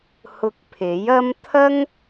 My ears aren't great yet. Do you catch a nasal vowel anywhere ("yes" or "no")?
no